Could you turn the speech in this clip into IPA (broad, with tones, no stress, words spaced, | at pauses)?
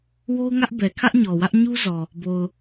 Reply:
wo˦ʊ̯ŋä˦ʔ bɛ˨ kʰä˦ʔɲɔ˨wä˦ʔ ɲu˦zɔ˨ | bo˨ʊ̯